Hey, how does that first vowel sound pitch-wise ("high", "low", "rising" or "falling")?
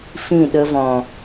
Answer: falling